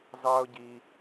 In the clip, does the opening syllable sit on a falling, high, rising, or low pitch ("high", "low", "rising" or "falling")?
high